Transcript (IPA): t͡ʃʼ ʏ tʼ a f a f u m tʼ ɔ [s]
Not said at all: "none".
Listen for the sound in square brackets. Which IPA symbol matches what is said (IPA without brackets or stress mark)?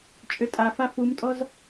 z